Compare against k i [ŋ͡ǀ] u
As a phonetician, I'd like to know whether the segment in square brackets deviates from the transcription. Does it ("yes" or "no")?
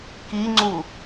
no